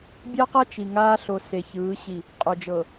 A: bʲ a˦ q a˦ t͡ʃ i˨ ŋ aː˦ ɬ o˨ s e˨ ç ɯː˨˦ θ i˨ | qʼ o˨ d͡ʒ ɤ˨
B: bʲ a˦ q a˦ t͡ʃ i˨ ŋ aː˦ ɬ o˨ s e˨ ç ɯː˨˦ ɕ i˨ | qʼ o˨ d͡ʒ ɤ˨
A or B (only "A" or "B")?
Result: B